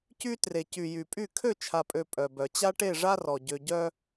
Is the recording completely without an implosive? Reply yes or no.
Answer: yes